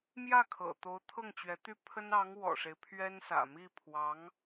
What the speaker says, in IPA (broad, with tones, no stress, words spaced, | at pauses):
mjä˥˩ kʰɤ̰˨˩ t̪o˧˥ʊ̯t̪ʰɤ˥˩ŋt͡ɕɥɛ˧˥t̪y˥ pʰə˥nɑ˧˥ŋ wɔ̰˨˩ʂe˦ɪ̯pʰɥɛ˥nsä̰˨˩ mi˥˩ pʰwɑ˧˥ŋ